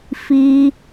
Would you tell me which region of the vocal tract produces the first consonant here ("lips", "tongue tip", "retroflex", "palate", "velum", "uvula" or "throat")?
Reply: lips